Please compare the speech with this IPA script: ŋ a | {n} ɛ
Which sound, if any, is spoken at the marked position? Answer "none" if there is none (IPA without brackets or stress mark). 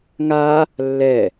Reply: lː